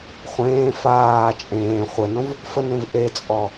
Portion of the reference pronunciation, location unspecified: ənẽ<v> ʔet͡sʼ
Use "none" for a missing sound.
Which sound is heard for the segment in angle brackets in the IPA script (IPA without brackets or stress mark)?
v